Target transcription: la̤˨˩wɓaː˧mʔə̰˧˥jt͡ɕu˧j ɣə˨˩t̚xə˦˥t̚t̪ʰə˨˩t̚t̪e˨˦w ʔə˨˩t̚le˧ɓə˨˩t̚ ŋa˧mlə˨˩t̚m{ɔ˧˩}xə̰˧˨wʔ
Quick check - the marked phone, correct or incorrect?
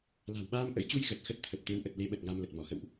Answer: correct